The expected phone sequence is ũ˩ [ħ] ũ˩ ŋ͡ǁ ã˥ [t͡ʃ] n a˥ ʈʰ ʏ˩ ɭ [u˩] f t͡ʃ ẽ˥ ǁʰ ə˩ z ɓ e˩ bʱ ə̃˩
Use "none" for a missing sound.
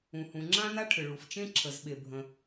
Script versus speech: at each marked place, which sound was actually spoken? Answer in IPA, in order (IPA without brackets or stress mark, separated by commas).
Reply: h, none, u˩